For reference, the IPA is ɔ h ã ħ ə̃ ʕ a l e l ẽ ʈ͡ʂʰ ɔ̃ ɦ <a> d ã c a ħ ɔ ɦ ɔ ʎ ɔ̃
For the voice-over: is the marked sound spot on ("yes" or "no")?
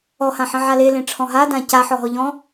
yes